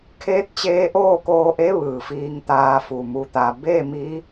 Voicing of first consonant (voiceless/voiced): voiceless